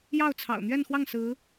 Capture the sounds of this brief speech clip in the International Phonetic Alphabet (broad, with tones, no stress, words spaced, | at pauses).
jɑ˥˩ʊ̯t͡sʰɑ̰˨˩ʊ̯ n̪ɥɛ˥˧nxwɑ˥˩ŋ sɹ̩˧˥